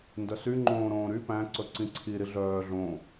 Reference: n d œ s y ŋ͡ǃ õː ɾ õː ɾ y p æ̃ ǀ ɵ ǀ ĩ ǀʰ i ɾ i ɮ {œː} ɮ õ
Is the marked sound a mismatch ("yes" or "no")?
no